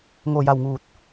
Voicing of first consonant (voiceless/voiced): voiced